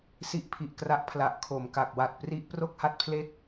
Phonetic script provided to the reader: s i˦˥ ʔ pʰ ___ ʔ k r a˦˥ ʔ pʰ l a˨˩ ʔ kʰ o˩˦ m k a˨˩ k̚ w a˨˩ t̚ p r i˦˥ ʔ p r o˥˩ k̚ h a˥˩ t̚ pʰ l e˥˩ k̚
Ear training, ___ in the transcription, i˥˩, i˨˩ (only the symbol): i˨˩